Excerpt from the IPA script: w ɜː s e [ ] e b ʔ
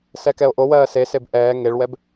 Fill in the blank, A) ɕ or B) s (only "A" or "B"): B